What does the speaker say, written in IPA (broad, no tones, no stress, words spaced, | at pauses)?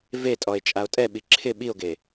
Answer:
vetʼɔe̯ t͡ʃʼao̯tʼɛɓi ǁʰɪ ɓio̯ɡe